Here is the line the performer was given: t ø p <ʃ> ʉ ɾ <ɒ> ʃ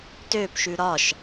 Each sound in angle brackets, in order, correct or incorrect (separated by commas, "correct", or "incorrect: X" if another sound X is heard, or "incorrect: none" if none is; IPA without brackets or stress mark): correct, correct